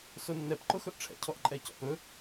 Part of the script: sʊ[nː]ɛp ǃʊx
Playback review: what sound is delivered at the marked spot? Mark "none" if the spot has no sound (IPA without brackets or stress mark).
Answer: nː